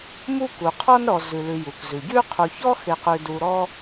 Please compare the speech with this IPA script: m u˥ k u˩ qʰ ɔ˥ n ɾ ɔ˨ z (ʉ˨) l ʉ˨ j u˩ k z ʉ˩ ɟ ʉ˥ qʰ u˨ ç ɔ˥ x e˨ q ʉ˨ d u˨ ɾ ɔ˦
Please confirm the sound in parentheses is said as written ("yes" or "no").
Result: no